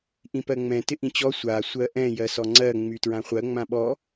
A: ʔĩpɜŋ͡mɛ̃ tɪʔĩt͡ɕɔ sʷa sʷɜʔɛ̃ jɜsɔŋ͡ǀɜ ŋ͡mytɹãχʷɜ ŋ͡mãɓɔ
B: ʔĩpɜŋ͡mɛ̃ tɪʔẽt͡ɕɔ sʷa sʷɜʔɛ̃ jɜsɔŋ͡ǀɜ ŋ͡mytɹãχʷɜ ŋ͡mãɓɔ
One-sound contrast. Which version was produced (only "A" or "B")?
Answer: A